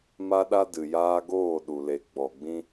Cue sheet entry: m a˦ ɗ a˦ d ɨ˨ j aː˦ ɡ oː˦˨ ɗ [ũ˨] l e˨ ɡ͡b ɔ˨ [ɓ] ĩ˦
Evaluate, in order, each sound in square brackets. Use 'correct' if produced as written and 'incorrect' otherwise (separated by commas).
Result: incorrect, incorrect